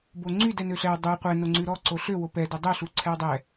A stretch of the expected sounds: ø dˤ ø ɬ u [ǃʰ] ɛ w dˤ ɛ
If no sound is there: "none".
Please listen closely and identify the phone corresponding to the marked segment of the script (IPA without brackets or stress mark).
ǀʰ